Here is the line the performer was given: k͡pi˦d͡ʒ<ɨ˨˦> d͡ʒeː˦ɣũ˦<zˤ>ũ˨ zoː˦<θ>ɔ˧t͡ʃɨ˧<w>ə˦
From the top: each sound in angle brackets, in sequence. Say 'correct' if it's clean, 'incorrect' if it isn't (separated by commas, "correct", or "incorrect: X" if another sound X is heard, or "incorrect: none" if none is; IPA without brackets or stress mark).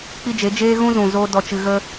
incorrect: e˨˦, incorrect: z, incorrect: d, incorrect: ɣ